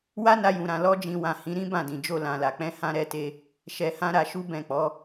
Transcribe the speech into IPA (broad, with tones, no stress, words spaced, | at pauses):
wa˦na˧jũ˨ɾã˨ lɔ˧ d͡ʒĩ˨wã˨ hĩ˨˦ɾĩ˦ bã˦˨dĩ˨d͡ʒo˧ lã˨la˨ k͡pɛ̃˧hã˧ɾɛ˧te˧ | ʃɛ˨hã˧ ɾa˧ʃu˦bɛ̃˦˨k͡pɔ˨˦